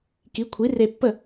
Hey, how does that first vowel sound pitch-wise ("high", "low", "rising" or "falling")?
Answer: rising